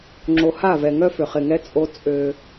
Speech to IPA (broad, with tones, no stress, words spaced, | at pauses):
ŋ͡ǁo˨ha˦˨vɛ˨ ŋœ˦fʏ˨χɪ˨ŋɛ˦ t͡sʼo˦ t͡sʼø˦